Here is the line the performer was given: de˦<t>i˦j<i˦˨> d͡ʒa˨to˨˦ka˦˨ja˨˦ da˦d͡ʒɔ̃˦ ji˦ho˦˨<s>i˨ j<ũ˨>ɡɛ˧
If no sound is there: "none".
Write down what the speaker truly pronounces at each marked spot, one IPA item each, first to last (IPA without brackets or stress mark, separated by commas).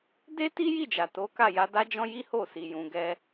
t, i˦˨, s, ũ˨